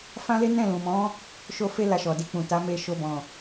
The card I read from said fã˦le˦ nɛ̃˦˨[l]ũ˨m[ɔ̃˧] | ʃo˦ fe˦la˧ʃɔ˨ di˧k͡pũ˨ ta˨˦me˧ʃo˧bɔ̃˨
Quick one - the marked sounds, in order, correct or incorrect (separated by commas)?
correct, incorrect